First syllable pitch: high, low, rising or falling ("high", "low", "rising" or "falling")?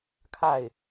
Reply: falling